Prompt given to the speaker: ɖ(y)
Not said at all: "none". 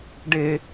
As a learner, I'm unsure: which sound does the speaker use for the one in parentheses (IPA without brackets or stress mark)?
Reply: e